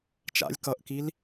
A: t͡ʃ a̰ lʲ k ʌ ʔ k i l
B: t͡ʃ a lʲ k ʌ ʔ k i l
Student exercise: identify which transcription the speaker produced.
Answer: A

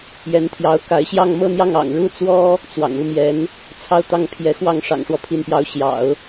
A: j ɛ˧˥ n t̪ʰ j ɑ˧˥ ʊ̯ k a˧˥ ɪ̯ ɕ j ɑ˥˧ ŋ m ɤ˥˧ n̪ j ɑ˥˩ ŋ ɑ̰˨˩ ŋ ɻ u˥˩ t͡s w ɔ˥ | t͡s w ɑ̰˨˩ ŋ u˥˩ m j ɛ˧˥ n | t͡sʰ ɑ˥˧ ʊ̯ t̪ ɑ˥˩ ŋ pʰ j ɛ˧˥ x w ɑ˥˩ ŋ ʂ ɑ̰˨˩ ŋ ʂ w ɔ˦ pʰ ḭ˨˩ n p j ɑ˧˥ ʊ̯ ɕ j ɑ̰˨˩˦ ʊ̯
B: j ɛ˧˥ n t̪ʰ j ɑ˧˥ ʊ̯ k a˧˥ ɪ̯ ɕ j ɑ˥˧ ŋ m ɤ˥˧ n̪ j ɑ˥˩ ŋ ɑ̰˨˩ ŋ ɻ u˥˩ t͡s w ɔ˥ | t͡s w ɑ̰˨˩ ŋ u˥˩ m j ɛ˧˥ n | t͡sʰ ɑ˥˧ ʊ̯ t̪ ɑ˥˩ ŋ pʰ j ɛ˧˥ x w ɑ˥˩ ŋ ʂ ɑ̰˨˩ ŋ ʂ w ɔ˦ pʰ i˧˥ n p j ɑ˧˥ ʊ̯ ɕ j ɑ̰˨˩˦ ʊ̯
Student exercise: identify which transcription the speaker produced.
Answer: B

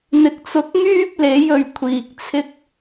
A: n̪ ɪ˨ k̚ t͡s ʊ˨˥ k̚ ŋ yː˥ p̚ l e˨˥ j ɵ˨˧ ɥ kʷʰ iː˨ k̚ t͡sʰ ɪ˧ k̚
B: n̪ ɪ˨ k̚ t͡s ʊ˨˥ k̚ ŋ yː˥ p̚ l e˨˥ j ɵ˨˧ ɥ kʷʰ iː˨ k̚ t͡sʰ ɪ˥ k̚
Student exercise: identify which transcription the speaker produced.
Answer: B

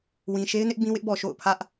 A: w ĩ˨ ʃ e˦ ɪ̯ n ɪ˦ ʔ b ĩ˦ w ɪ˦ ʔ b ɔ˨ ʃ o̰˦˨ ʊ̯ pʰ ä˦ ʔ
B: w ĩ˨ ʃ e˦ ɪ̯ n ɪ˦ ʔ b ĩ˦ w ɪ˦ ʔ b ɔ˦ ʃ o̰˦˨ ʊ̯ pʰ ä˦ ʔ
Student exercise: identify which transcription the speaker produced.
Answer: A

